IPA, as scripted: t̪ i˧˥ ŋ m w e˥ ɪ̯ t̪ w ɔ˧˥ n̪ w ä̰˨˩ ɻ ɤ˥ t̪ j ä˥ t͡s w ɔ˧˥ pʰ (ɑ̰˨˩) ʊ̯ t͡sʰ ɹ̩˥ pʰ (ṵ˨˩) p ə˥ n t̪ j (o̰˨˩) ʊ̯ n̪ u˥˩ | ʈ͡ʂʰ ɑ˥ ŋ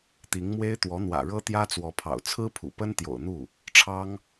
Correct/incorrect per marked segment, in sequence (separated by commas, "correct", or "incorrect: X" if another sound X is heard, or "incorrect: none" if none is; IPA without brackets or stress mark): correct, correct, correct